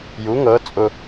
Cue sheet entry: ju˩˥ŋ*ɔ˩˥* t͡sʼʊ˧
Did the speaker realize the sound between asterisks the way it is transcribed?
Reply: no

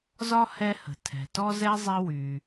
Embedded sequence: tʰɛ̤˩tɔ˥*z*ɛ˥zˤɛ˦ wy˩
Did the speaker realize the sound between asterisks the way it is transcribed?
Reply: yes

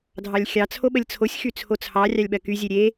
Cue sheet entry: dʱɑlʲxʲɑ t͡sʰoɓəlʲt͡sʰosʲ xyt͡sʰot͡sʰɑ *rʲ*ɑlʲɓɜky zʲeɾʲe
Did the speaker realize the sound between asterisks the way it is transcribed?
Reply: yes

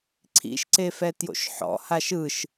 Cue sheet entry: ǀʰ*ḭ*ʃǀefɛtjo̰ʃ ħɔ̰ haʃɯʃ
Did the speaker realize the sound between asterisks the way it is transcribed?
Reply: yes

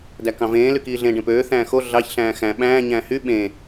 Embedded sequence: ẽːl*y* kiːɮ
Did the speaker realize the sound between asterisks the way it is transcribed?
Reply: yes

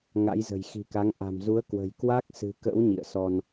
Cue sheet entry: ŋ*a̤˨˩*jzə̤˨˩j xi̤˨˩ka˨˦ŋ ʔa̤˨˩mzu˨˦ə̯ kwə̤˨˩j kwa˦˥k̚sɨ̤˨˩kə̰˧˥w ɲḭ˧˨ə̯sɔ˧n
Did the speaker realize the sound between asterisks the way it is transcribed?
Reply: no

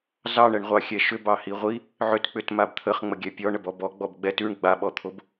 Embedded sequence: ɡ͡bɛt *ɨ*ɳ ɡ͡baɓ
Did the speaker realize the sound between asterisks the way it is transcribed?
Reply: no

